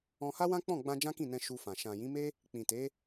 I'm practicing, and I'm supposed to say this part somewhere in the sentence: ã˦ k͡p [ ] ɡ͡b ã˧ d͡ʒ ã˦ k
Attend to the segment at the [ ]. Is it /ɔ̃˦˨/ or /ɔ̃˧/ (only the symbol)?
ɔ̃˦˨